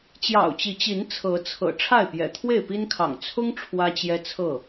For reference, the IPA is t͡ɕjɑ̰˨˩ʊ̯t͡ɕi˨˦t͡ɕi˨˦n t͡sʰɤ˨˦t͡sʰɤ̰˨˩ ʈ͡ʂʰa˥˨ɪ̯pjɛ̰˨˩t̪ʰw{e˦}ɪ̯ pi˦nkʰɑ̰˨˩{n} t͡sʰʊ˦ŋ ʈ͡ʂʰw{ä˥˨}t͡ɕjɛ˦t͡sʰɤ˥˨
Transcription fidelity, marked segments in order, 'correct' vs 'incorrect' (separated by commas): incorrect, incorrect, incorrect